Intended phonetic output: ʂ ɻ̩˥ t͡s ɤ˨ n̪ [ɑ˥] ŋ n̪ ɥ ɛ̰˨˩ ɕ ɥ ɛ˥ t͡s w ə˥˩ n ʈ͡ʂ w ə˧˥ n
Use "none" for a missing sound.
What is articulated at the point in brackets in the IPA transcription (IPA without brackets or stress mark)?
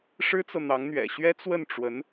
ɑ˧˥